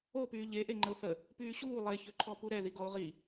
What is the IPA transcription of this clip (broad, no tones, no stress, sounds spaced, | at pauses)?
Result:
o p yː ʎ e ʔ e ŋ͡ǃ ə ʊ̯ θ ə | p yː ɕ uː lˠ e ç ø ǃʰ ɔ p u ɾ ɛ ð i ɡ ɔ ʊ̯ ʁ i